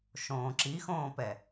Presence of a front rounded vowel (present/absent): absent